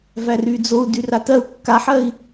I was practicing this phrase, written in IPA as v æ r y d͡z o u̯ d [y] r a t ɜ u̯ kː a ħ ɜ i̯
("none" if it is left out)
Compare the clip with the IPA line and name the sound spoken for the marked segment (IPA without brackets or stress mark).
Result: y